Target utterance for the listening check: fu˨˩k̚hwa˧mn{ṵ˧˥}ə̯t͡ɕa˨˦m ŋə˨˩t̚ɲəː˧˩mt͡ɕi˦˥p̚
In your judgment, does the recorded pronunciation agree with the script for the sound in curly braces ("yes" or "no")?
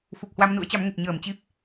yes